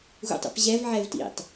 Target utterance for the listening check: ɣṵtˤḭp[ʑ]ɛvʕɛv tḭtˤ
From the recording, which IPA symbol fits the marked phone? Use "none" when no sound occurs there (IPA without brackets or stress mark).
ʑ